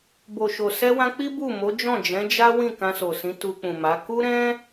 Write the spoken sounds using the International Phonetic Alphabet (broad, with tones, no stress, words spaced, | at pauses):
bo˨ʃo˨ sɛ˧wã˧ k͡pi˦ bu˦˨mo˨˦d͡ʒɔ̃˦˨ d͡ʒɛ̃˨˦d͡ʒa˦ wĩ˦˨kã˧so˨sĩ˨˦ tu˧k͡pũ˨ma˨˦ ku˦ɾɛ̃˦